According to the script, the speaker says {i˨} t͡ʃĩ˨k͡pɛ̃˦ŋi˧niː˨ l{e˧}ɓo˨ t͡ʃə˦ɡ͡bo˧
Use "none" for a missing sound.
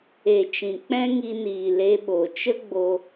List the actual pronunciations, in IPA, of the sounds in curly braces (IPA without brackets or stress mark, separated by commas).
e˨, e˧